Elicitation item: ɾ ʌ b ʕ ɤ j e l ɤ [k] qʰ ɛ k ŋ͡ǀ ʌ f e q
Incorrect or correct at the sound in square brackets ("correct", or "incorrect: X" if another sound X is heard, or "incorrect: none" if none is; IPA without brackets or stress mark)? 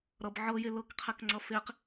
correct